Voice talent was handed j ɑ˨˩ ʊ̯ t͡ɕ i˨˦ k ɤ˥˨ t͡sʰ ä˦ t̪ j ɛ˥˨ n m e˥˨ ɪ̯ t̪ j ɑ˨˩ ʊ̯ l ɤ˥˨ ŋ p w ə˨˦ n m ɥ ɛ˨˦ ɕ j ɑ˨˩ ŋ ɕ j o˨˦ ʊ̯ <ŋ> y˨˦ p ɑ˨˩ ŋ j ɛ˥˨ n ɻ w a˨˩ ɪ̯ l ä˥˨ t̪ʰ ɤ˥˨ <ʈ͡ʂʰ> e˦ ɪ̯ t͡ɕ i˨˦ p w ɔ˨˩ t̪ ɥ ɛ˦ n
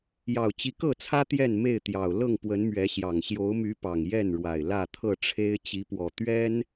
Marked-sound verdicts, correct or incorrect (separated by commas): incorrect, correct